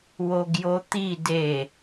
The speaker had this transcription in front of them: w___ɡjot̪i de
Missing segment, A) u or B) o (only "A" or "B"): B